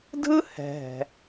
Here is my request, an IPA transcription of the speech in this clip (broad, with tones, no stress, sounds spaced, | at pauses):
dʱ ɯ˥ h ɛ̤˩ ɦ ɛ̤˩